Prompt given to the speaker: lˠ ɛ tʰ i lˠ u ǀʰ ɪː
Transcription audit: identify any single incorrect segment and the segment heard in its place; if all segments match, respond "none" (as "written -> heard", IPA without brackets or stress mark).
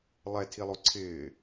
none